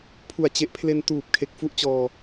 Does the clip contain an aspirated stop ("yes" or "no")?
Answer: yes